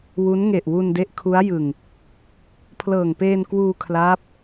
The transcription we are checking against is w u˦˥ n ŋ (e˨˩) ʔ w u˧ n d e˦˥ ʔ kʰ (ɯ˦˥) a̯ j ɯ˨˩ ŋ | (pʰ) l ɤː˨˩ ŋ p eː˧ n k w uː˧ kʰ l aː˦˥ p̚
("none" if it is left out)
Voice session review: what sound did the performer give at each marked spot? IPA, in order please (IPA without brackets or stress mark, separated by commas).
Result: e˨˩, u˦˥, pʰ